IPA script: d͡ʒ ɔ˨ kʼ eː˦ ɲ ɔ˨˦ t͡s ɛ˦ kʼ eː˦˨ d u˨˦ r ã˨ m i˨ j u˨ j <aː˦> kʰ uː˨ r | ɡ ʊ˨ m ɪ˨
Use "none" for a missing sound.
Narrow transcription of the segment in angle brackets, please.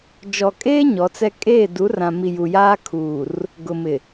aː˦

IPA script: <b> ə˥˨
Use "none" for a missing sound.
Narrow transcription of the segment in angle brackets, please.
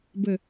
b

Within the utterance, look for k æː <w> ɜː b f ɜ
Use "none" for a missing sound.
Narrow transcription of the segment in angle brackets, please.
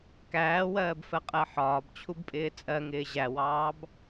w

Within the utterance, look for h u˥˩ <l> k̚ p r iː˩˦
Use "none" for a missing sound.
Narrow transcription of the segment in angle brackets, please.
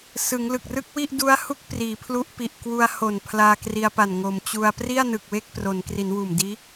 none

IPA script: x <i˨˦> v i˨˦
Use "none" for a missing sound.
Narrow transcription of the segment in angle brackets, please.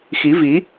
i˨˦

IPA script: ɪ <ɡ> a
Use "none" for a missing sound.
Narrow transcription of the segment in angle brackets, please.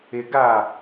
ɡ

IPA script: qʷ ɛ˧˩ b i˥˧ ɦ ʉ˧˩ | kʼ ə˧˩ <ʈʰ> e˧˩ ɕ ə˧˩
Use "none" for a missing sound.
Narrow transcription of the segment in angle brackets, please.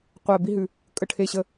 ʈʰ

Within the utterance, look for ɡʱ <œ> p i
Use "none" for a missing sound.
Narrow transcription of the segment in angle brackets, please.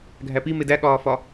æ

